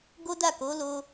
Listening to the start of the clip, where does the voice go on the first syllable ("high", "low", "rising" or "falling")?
high